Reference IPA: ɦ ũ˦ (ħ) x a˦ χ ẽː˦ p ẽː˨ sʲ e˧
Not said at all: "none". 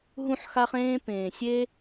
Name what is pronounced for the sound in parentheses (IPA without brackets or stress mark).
ħ